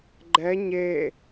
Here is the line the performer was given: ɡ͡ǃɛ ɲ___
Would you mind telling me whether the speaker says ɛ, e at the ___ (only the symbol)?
e